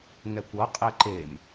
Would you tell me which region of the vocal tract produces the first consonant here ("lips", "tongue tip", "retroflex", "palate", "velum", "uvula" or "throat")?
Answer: velum